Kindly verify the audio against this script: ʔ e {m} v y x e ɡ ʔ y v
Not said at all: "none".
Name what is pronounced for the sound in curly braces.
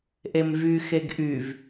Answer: m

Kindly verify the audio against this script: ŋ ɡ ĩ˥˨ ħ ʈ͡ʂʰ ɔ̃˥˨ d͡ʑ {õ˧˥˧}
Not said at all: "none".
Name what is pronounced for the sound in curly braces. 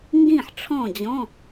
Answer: ɔ̃˧˥˧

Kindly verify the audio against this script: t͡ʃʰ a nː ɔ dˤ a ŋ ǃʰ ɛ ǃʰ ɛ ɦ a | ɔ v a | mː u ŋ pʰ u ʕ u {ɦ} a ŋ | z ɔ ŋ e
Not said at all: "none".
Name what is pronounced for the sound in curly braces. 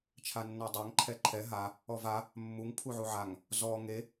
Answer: ʕ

